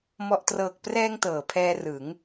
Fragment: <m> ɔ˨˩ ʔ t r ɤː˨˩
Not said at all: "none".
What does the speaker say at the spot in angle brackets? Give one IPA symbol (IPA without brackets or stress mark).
m